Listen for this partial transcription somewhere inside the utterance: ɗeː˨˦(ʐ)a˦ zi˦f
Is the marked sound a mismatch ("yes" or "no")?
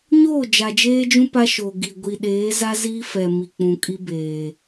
yes